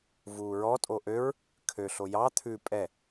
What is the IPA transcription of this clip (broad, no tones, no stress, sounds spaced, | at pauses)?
v uː ɹ ɔ tʼ o ʔ ø ɹ | kʰ ø ɬ o j ɑ t̪ʰ ʉ pʼ ɛ